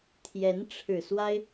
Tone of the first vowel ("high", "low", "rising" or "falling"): rising